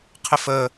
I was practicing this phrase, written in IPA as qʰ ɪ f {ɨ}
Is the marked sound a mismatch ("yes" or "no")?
yes